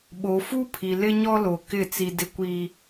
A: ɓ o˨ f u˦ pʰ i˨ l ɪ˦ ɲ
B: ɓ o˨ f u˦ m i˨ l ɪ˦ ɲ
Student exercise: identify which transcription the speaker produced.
A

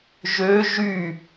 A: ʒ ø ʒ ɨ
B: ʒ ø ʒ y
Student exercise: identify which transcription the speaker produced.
B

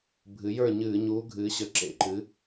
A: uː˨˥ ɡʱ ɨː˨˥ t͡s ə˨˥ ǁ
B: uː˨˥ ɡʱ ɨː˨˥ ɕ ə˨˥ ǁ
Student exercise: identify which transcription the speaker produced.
B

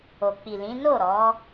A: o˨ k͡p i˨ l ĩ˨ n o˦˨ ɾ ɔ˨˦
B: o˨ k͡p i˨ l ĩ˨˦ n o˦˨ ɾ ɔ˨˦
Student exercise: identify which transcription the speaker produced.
B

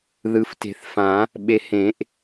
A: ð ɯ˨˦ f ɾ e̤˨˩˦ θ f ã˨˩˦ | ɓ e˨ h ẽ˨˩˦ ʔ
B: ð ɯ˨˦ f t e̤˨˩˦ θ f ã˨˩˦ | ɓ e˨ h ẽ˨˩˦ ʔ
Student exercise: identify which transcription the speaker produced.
B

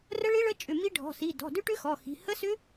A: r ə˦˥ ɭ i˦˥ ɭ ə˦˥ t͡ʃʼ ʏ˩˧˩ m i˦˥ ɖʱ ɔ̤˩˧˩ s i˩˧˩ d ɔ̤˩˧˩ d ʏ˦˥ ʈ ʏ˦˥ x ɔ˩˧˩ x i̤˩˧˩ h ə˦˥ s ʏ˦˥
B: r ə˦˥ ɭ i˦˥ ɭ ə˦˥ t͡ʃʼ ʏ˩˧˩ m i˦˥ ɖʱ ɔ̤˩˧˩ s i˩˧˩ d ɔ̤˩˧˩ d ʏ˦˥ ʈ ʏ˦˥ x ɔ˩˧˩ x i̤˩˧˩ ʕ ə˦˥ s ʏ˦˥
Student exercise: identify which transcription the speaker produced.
A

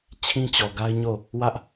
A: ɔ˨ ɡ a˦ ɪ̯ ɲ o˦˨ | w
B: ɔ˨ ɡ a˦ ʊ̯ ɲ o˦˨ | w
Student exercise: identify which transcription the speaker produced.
A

